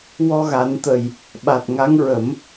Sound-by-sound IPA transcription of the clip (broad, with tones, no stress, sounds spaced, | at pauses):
w ɔ˧ ɣ a˨˩˦ n t̪ ə˨˩ j | ɓ a˨˩ t̚ ŋ a˧˥ ŋ ɹ ə˨˩˦ m